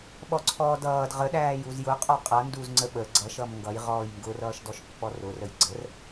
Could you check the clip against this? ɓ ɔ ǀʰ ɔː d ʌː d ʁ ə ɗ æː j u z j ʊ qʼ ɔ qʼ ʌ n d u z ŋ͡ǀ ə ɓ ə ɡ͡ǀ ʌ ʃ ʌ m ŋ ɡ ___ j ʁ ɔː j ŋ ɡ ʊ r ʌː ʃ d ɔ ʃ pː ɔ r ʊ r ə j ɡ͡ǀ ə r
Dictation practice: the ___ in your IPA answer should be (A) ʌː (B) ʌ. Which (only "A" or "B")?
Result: B